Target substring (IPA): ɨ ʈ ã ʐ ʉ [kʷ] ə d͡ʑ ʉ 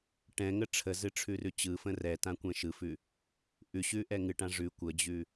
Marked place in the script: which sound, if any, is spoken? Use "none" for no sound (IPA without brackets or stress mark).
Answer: kʷ